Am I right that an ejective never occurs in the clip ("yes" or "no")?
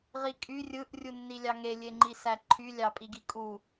no